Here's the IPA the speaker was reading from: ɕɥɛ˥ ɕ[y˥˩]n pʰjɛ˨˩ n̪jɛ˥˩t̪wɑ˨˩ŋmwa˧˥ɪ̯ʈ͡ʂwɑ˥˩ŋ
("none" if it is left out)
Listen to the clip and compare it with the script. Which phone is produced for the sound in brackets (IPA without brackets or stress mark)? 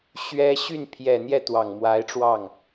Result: y˥˩